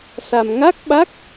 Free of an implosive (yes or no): no